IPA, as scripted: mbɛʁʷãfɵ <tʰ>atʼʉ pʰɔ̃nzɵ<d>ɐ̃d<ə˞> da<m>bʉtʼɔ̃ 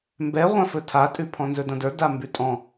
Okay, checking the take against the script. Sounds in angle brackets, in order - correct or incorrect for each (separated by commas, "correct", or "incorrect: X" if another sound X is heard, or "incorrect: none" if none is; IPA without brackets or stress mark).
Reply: correct, correct, correct, correct